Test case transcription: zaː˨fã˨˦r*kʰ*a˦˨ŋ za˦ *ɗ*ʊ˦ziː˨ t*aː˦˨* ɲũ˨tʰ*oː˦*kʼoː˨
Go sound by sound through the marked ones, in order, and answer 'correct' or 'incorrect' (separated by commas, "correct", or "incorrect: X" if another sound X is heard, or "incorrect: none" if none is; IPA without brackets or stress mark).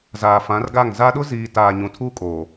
incorrect: ɡ, correct, incorrect: aː˨, incorrect: uː˦